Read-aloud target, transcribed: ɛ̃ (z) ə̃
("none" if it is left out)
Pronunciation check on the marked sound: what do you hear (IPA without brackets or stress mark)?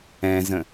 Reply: z